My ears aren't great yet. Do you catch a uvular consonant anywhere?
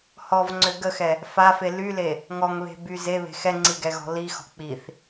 no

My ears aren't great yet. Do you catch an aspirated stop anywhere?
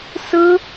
no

